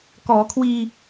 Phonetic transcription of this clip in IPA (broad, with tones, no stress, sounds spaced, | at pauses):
k ɔː˩˦ kʰ w iː˧